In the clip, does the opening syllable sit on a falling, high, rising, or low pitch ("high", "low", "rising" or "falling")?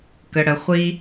low